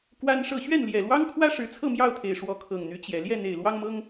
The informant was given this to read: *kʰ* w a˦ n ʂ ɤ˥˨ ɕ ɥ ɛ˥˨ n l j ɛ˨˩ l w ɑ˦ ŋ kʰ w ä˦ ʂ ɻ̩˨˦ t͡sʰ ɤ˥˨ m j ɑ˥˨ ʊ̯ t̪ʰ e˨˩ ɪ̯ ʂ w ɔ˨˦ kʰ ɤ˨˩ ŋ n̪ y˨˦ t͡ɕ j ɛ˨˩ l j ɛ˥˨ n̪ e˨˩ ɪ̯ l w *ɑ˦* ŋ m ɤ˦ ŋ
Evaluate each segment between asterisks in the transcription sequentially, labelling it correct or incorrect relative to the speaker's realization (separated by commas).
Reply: incorrect, correct